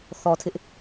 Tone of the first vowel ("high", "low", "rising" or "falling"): low